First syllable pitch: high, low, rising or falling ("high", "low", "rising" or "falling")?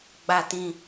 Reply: high